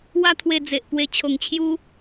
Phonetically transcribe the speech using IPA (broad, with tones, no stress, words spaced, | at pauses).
wa˦t̪ʰwe˧d͡ze˨ʔ pwe˧ t͡ɕʰo˧ŋt͡ɕʰju˦